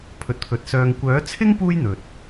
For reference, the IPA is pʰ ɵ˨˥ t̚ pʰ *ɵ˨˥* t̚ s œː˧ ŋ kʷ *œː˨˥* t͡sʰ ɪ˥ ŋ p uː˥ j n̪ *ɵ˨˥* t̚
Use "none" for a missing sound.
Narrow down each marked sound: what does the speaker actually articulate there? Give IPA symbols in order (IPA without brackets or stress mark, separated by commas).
ɵ˨˥, œː˨˥, ɵ˨